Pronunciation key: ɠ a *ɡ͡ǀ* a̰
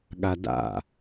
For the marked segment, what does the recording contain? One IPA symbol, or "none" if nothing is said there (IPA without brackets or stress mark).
d